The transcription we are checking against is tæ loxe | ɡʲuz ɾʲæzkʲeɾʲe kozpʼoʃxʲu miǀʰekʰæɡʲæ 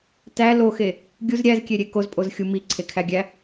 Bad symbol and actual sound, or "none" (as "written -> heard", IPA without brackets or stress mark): ʃ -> z